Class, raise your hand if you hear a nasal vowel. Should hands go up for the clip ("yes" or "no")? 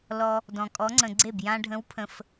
yes